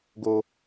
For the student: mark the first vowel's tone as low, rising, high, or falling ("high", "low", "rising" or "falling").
high